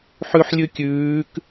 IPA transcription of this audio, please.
ħ ʉ ħ lʲ ʉ kʲ ʉː k

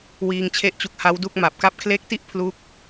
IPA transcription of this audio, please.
w iː˧ ŋ t͡ɕʰ e˥˩ ʔ t͡ɕ u˦˥ k̚ h a˦˥ w d u˥˩ k̚ m a˨˩ p̚ k a˦˥ p̚ kʰ l e˦˥ k̚ t i˥˩ ʔ pʰ l u˦˥ k̚

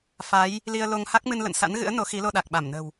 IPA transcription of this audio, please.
f a˨˦ j | l i˧ ə̯ l o˧ ŋ h a˦˥ k̚ m ɨ˧ n l ə̰˧˨ n s a̰˧˥ n ɣ ɨ̰˧˥ ə̯ n o˨˦ x i˨˦ l o˧ ɗ a˨˩ k̚ ɓ a˧˩ m n ə̤˨˩ w

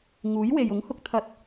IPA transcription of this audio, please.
ŋ uː˨˥ j w e˨ j ʊ˨˥ ŋ h ʊ˧ k̚ t̪ʰ ɐ˧ t̚

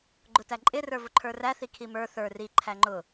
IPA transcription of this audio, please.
ɡ͡ǃ ʊ t æ ǃʼ ɪ r ə˞ v ʊ ǃʰ ə˞ r æ θ i kʰ i m ə˞ θ ə˞ r i ǃʰ æ ŋ͡ǃ ʊ

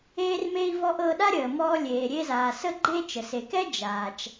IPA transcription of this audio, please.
eː˥ r m e˥ i̯ v ɔ˥ ʔ ɤ˧ ɗ a˥ ɾʲ əː˩ m ɔː˧ lʲ eː˩ ɾʲ e˧ z aː˩ s ə˥ ɡ͡ǃ e˥ t͡ʃ ə˩ s e˩ k ɛ˥ d͡ʒ aː˩ t͡ʃ

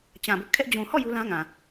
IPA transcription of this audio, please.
t͡ɕ ã˨ b ʊ˦ ʔ kʰ ɛ˦ ʔ d͡ʑ ũ˨ h ɔ˦˨ j u˦ l ã˦ ŋ ã˨

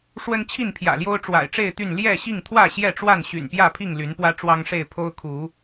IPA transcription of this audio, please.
ʂ w ə˦ n t͡ɕʰ i˥˨ n pʰ j ä̰˨˩ l j o˦ ʊ̯ ʈ͡ʂ w a̰˨˩ ɪ̯ ʈ͡ʂ e˥˨ ɪ̯ t̪ y˥˨ n l j ɛ˥˨ ɕ i˥˨ ŋ t̪ʰ w ä˥˨ ɕ j ɛ˥˨ ʈ͡ʂ w a˥˨ n ɕ y̰˨˩ n p j ä˥˨ pʰ i˥˨ ŋ l y˨˦ n p w ä˦ ʈ͡ʂ w ɑ˦ ŋ ʂ e˥˨ ɪ̯ pʰ o˦ ʊ̯ kʰ u˨˦

